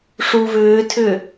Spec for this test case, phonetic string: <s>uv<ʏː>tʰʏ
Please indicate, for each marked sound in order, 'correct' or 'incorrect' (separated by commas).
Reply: incorrect, correct